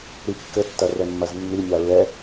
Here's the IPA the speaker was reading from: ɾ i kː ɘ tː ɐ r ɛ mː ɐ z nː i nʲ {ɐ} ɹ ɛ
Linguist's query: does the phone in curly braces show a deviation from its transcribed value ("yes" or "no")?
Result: yes